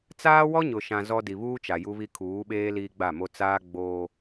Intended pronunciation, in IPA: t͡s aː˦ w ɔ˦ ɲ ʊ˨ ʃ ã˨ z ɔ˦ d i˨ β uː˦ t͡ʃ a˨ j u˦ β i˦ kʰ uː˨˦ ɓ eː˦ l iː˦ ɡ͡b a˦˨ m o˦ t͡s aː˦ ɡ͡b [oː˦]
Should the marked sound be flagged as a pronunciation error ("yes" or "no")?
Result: no